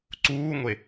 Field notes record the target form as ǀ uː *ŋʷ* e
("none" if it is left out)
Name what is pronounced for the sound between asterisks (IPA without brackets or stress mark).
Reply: ŋʷ